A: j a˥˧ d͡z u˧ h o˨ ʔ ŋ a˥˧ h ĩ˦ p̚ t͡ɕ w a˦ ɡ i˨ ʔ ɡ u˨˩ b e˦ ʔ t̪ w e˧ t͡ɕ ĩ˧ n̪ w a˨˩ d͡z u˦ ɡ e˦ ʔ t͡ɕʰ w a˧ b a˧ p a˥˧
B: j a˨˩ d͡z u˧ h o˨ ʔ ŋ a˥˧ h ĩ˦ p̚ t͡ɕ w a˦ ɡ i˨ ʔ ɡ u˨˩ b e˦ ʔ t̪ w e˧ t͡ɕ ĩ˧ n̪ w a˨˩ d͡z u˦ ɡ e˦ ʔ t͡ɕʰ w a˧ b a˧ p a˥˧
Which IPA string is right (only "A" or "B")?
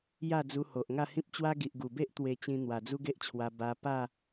A